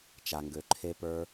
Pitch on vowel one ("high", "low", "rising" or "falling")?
low